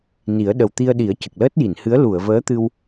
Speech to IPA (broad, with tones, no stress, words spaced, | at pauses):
ni˨˩˦ə̯ɗə˨˩wt̪i˧ə̯ɗi˨˩˦ə̯ cə˨˩k̚ləː˦˥t̚ji˨˩˨nhɨ˧˥ə̯ lu˨˩˨ə̯vəː˧˥t̪ɨ˧w